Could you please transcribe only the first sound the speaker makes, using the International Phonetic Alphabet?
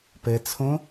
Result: p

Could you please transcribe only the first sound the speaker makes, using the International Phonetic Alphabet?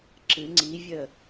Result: ǁ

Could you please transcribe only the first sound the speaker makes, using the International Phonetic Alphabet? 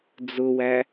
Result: d͡z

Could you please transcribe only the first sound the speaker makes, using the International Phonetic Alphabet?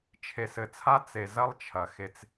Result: t͡ʃʰ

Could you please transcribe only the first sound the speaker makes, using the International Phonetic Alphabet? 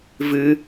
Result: v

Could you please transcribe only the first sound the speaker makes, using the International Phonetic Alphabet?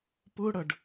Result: p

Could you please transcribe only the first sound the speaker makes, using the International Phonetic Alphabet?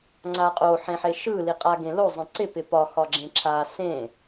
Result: ŋ͡ǀ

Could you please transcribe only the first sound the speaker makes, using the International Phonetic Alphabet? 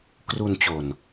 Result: k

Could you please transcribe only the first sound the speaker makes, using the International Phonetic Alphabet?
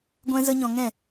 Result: ɡʷ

